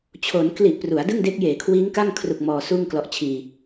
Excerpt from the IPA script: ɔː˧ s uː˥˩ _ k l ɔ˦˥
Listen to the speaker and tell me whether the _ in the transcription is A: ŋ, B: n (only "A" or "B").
A